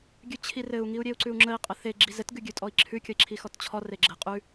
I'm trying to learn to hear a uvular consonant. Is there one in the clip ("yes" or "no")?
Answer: yes